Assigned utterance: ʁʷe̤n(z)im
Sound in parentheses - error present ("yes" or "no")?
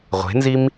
no